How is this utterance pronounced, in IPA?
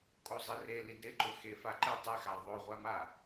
kʼozˤire lidɾɪǃʊ xefaǃɪ tˤexa ðˤoʁʷama

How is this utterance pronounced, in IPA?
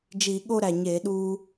d͡ʒi˧˩˧ɠo˥˧ɾæ˨˩ɲeː˧˩˧ ɗuː˧

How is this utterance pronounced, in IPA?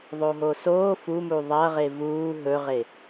ðˤoɦosoː fumu ðˤɐʁe vuː ɦɵʁe

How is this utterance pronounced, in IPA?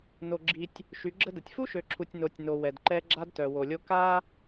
no˨ɡ͡ǁi˨tʲ | ʃy˨˦ɡ͡ǁə˦də˨tʲ fu˦ʃø˨ǁʰu˨tʲ no˨tʲno˨ wɛ˨dǃɛ˦ ɡ͡ǁa˦dtœ˨wo˨lʲo˦ ka˦

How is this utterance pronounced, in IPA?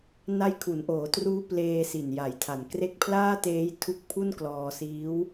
na˦˥jkʰu˩˦nʔoː˩˦truː˦˥ pleː˧si˨˩nja˨˩jtʰa˨˩n kre˦˥k̚pʰlaː˥˩teː˦˥j tʰu˦˥k̚pʰu˥˩nklɔː˧siː˦˥w

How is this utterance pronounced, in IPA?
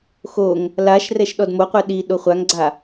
xoŋ | laʃ rɛʃɗɔdmoqʷɛ ɗi ɗoχʷaŋɡ͡ǀa

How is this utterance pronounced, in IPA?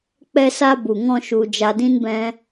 k͡pɛ˧sa˧bu˨ŋɔ̃˧ ʃu˧ d͡ʒa˧dĩ˦nbɛ̃˦

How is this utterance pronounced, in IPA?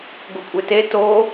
ɡokʷʼete to

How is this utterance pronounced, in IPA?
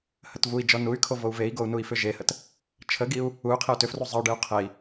hətvui̯d͡ʒɔ nuy̯kʰo vou̯vei̯ɡou̯ nui̯fʏʒehət | t͡ʃʰəɡiu̯ | uy̯ qʰeu̯tʏfru zˤəy̯ɖeu̯ qʰei̯

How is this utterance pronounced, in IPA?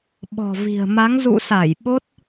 ɓɔ̤˨˩ vi̤˨˩ə̯ma˨˦ŋ zṵ˧˨sa˧˩j ɓo˦˥t̚

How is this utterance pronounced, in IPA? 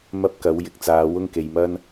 mɐ˥p̚kɐ˨˥wjɪ˨k̚ t͡saː˨˧ wʊ˥ŋke˨jmɐ˥n

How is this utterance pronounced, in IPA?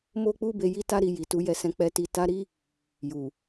mo˦k͡pu˦be˧ ji˦ta˦ɾi˧ ji˨ tu˧jɛ˧sɛ̃˧ k͡pɛ˧ ti˧ ta˧ ɾi˦ | ju˨

